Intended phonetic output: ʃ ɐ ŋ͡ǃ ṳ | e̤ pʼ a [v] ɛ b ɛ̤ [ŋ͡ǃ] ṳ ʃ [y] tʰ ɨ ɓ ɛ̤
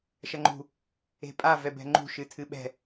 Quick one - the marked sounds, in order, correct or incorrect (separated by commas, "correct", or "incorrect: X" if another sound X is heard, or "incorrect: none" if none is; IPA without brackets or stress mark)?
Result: correct, correct, incorrect: ɨ